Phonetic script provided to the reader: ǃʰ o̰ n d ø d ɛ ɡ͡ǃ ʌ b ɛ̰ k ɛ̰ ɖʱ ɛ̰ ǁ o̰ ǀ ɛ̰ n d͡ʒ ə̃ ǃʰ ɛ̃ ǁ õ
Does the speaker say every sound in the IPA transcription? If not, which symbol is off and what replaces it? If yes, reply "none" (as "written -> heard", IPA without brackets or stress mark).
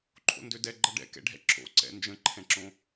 b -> ɖ